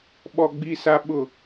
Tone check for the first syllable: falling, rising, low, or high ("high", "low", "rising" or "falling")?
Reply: high